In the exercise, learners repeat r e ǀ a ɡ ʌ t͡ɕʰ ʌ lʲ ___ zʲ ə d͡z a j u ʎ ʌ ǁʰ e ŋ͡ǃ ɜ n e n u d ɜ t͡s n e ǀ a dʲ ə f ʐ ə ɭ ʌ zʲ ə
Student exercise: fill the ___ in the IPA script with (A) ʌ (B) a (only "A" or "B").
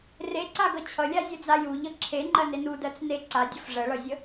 B